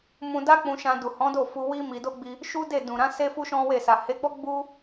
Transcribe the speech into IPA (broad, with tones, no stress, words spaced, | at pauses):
mũ˧da˦k͡pũ˧ʃã˧ du˨hɔ̃˨˦do˦˨fu˧ wi˦mi˧do˦ɡ͡bi˧ | ʃu˦de˦˨ dũ˨ɾã˨˦ se˦fu˦ʃɔ̃˦we˦˨ sa˨he˨˦ɡ͡bɔ˦ ɡ͡bu˦